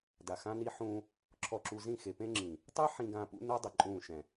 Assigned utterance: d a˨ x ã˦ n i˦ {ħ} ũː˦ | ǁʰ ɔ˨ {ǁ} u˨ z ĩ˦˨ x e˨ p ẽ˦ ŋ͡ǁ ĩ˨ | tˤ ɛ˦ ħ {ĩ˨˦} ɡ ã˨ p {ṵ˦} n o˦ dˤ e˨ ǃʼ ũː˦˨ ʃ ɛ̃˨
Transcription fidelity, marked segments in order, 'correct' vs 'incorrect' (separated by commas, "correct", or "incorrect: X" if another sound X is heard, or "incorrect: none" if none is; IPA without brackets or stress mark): correct, correct, incorrect: ĩ˨, correct